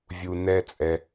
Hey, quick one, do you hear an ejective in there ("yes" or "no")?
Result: yes